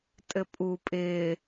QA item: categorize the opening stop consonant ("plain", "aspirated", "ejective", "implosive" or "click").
ejective